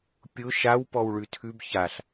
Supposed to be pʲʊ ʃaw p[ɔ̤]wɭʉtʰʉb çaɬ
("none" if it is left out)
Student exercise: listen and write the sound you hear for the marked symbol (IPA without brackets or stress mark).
ɔ